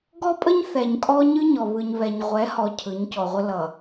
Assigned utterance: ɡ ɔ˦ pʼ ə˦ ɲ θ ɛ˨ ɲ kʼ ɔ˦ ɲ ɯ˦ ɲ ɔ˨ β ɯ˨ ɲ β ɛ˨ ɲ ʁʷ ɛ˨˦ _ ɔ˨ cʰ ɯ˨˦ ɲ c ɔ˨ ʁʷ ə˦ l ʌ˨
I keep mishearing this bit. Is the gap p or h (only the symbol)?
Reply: h